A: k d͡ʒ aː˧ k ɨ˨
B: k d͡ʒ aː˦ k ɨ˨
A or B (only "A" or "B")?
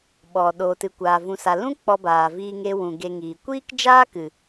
B